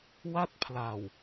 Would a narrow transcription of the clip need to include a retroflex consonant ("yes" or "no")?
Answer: no